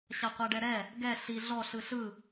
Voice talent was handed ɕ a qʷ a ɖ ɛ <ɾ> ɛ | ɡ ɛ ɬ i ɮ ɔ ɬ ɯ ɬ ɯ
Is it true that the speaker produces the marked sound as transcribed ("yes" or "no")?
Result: yes